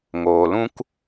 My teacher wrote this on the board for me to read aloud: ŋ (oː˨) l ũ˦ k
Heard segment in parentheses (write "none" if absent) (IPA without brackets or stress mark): oː˨